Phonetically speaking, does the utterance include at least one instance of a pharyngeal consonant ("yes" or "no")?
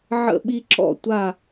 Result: yes